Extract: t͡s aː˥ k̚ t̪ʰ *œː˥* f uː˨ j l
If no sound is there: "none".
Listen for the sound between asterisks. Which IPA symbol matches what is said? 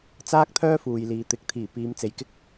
œː˥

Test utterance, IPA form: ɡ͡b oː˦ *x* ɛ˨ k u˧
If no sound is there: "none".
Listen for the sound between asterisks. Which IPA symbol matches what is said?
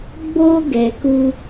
ɡ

